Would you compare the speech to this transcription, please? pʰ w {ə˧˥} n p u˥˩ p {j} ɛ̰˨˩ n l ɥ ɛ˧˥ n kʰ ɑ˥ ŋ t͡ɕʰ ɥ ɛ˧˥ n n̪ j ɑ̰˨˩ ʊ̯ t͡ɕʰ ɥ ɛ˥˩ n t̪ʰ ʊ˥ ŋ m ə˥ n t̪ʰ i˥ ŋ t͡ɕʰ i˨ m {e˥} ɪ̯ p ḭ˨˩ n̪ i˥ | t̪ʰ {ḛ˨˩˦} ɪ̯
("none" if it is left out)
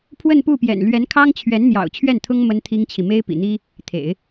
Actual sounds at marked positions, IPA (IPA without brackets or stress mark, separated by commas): ə˥˧, j, e˥, ḛ˨˩˦